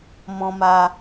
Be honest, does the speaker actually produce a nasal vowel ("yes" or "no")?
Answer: yes